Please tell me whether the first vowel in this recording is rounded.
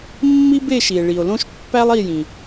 no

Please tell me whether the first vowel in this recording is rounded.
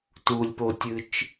yes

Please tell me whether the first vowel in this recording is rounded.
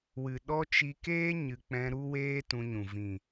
no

